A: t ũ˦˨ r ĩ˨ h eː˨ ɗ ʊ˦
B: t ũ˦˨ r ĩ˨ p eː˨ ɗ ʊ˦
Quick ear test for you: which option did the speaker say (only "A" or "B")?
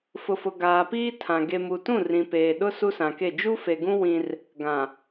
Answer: B